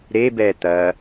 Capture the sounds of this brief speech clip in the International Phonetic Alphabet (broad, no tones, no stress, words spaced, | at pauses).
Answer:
ɾebɛ t̪ɐ